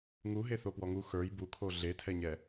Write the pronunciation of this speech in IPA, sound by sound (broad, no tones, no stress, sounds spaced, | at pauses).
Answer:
ŋ u ɦ e θ o p w ɔ ŋ u x ə˞ j b u kʰ o ɮ e tʰ ɛ ɲ ɛ